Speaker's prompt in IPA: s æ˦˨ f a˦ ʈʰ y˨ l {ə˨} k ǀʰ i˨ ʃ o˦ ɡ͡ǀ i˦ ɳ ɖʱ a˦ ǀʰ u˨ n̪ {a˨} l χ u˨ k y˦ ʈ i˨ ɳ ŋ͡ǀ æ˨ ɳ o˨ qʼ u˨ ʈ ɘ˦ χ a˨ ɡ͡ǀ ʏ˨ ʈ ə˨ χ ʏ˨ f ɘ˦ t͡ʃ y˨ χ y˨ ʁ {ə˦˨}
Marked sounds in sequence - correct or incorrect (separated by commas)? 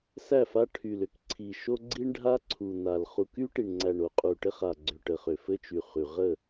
incorrect, correct, correct